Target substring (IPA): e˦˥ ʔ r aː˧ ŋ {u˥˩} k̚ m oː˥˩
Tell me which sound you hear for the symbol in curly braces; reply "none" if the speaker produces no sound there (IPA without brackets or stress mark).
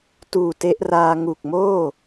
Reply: u˨˩